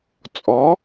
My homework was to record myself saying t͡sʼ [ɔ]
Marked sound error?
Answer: no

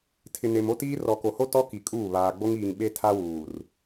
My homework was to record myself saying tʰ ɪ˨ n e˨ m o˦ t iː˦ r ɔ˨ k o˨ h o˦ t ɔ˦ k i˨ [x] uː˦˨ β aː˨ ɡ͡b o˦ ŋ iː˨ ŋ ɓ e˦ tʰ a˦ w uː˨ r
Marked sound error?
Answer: yes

